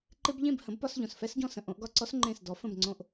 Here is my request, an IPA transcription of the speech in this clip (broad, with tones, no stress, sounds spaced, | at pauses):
ǃ ɪ˥ b ʎ ẽ˥˩ b h ə̃˩˥ b p ɒ˧ s ʎ õ˩ s f ɛ˥ s ɟ ɔ̃˥˩ s ə̃˧ ʔ õ˩˥ ʔ ɡ ɒ˥˩ ǀ ɔ˥ s ŋ͡ǃ ẽ˥˩ s d ɔ˩˥ f ə̃˥˩ b ŋ͡ǀ õ˧ ʔ